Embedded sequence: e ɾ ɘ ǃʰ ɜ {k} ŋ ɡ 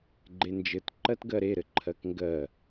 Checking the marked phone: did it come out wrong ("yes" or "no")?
no